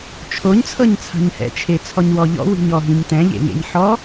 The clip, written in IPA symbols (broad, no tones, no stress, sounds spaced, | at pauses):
t͡ʃʰ o ɲ t͡sʰ ɤ ɲ t͡sʰ a̤ ɲ h ɛ̰ t͡ʃʰ e t͡sʰ ɔ ɲ w ɔ ʎ ɔ̰ w i̤ ɲ ɔ ɦ ĩ ɲ t ɛ̃ ʎ ḛ ŋ ḛ ɲ ħ ɔ